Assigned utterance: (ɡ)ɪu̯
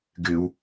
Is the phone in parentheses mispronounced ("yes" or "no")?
no